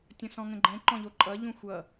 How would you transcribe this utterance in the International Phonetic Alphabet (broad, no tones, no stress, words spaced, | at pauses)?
tʲə̃sɔ̃ŋə̃ɡ͡ǃɛ̃ ǃɔ̃ʎoǃʼʌ ʎũxʷʌ